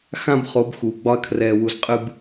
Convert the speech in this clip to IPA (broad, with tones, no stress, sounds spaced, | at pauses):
x ã˦ b χ o˨˦ b x uː˨ ɡ͡b ɒ˦ ɐ̯ kʰ r ɛː˨ w u˨ z qʼ ɨ˨ b